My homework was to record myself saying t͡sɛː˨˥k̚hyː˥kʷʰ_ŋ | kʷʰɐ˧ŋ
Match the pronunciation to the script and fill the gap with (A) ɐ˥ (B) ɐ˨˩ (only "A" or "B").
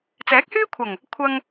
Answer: B